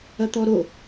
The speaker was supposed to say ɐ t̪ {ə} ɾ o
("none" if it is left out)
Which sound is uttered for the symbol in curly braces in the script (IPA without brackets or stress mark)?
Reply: ɔ